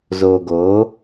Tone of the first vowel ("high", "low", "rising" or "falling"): low